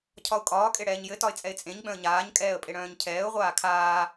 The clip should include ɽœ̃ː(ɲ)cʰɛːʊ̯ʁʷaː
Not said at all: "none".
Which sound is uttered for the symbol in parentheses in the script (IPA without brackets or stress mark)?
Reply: ɲ